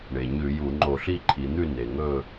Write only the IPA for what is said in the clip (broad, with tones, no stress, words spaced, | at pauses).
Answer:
ɳe˩ɲʉ˧˩˧ju˧˩˧ ŋ͡ǃo˧˩˧ɬi˥˨ǃʰi˩˧n̪ʉ˥˨ ne˩ŋɵ˥˨